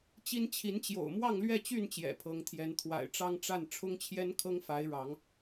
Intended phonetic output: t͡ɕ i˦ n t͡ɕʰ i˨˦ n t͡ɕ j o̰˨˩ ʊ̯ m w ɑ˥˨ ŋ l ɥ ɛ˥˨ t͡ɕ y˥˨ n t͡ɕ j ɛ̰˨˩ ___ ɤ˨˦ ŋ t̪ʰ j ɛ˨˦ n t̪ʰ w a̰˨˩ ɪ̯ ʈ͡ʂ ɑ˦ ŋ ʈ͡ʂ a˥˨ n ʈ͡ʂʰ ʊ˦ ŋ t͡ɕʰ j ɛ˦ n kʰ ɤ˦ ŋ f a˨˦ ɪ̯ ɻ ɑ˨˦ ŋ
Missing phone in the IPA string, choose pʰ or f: pʰ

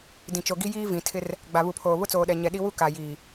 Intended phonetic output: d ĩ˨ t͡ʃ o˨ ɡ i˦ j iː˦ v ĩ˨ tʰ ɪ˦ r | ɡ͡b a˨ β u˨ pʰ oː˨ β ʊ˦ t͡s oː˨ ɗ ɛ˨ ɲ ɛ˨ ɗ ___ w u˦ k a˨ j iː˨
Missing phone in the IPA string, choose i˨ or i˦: i˦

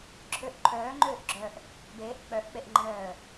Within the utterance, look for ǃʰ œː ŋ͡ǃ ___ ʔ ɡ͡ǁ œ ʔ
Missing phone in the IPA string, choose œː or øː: øː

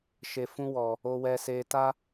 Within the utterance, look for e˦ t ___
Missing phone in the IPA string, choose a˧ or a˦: a˦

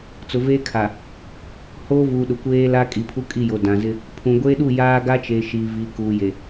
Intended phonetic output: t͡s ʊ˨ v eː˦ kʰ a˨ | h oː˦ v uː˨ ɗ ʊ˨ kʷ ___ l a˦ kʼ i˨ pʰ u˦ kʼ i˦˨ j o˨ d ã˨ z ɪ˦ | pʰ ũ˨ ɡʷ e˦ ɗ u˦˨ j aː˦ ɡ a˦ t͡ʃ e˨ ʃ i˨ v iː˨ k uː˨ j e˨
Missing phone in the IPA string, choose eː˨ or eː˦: eː˦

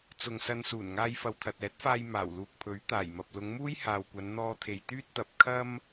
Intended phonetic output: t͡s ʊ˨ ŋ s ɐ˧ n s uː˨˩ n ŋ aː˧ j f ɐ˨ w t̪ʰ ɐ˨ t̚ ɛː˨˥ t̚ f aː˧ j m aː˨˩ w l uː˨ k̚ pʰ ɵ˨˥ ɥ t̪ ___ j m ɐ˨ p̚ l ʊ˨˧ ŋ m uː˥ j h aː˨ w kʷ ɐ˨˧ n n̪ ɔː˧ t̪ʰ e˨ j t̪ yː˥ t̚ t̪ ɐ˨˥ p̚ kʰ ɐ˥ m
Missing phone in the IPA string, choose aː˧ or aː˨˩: aː˨˩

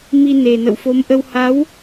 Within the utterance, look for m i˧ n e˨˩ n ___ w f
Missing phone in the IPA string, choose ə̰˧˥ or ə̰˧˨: ə̰˧˨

